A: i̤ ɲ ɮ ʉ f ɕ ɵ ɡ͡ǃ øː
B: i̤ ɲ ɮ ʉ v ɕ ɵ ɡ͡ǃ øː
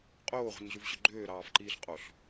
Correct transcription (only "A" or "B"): B